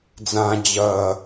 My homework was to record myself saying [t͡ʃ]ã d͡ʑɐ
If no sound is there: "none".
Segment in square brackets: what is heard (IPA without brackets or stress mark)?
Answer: d͡z